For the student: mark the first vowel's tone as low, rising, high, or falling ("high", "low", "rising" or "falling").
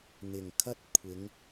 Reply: low